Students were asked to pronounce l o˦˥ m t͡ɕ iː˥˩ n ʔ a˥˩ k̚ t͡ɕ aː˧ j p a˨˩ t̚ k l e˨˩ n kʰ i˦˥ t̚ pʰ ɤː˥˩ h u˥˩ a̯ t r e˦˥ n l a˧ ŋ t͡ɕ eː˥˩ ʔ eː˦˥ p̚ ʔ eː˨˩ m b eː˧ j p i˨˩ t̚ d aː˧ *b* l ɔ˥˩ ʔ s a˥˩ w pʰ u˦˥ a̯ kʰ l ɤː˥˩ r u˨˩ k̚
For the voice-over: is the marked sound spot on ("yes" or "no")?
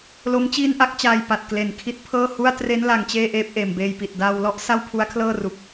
no